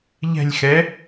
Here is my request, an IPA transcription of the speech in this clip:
ʎ ɛ̤ lʲ x ɛ

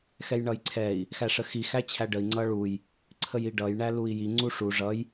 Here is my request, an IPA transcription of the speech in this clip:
x ɛ j ɳ ʌ j ǀʰ ɛ i̯ | x æ ʂ ə x i x æ t͡ɕʰ æ ɖ ə i̯ ŋ͡ǀ ʌ ɭ u j | ǀʰ ə j i ɖ ʌ j ɳ æ l u i̯ j i ŋ͡ǀ u ʂ u ʐ ʌ j

